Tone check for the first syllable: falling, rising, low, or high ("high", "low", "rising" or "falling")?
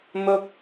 high